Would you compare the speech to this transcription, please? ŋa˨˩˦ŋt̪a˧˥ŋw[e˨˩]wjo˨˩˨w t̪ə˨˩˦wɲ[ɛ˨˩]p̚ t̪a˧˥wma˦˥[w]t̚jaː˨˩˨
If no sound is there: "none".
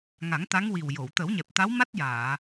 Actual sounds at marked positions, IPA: i˨˩, ɛ˨˩, none

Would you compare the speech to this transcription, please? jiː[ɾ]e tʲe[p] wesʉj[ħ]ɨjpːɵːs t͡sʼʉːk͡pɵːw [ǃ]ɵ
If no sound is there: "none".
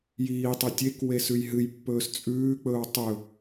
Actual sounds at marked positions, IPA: tˤ, k, ɦ, tˤ

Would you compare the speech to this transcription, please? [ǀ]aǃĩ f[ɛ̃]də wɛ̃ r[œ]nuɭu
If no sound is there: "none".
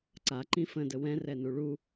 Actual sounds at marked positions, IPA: ǀ, ə̃, ɛ

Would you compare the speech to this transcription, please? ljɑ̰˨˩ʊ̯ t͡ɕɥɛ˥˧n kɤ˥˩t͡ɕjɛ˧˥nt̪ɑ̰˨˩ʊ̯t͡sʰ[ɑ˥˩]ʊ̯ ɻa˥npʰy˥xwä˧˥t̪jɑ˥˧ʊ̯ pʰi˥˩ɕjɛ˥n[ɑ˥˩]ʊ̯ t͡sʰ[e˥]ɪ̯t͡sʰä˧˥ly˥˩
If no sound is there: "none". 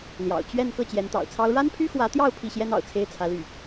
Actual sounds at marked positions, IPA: ɑ˥, ɑ̰˨˩, e˥

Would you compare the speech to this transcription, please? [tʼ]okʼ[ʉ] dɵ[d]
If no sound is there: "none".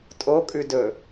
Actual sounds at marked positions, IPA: tʼ, ʉ, none

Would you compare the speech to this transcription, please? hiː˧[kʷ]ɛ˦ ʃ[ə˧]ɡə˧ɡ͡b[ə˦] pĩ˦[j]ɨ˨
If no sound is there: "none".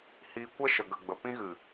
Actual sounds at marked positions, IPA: kʷ, ə˧, ə˧, ɣ

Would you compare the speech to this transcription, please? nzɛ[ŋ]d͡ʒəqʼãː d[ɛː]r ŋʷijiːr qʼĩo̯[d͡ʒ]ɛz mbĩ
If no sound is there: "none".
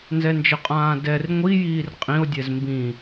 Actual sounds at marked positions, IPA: n, ɛ, dʲ

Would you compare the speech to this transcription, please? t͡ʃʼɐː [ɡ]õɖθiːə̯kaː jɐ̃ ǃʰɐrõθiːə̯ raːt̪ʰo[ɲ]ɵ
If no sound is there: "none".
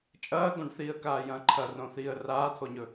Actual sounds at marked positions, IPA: ɡ, ɲ

